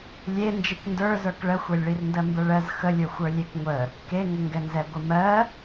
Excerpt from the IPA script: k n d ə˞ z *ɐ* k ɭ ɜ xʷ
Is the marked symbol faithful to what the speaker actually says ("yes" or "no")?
no